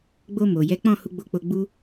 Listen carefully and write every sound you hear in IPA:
ɡ͡b o˧ m o˨ j ɛ˨˦ k͡p ɔ̃˦˨ h u˧ ɡ͡b o˧ k͡p o˧ ɡ͡b u˦

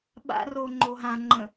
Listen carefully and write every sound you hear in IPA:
ɓ a̰ r o ŋ͡ǃ o ɦ ã ŋ͡ǃ ə̃

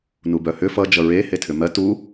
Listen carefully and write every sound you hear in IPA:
n u b œ h ʏ f ʌ d͡ʒ ʌ ɹ e h e tʰ ʏ m ɜ t u

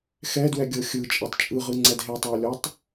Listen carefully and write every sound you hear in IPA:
x ɛ d w ɛ ɡʲ ɤ xʲ ɯ t͡ʃʼ e tˤ t͡ʃʼ ɯ ʁ ɯ ŋ͡ǀ ɛ d ɦ e tˤ ɛ w lʲ ɔ tˤ

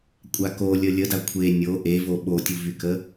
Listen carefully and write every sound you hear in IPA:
kʷʼ a k o lʲ ə lʲ ə d a kʷʰ e nʲ o ʔ e v o ɓ o tʲ u v y k ə

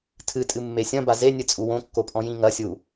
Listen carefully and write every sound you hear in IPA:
tʰ ɨ tʼ ɨ mː e sʲ ɐ̃ b a z e nʲ ɨ t͡sʼ u w õ kː o pʼ ɔ̃ j ĩ ŋ ɐ sʲ u

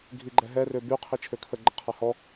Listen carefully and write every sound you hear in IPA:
ɡʱ i ɡ͡ǃ ɛ ɦ ɛ r ø b y qʰ i t͡ʃʰ ø kʰ ə ɡ͡ǃ ə qʰ a h ɔ

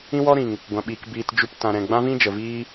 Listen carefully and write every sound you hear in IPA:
ĩ˦ w ɔ˦ ɾ ĩ˨ ŋ | ɡʷ ã˨ ɓ iː˨ k b iː˧ t d͡ʒ u˦ p t ã˧ ɾ ɛ̃˨ ɡ͡b ã˦ v ĩ˦ d͡ʒ ə˨ v iː˦

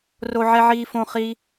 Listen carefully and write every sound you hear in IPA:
r o˦ ʕ ɛ˦ ʕ iː˦ f õ˦ χ i˦

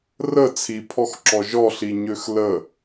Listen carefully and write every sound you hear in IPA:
r ə t͡sʰ i pʰ ɔ x ǁ ɔ ʒ ɔ ɬ i ɲ ø x l ə

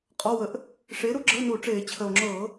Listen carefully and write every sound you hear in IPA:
qʼ ɔ˧˥˧ w ə˨˥ ʔ | ʂ eː˨˥ ɾ u˨˥ ɡ͡ǁ ə˧˥˧ o̯ n uː˧˩˧ ʈ͡ʂ eː˧˩˧ t͡ɕʰ ə˨˩ o̯ ŋ͡ǁ ɤː˧˩˧

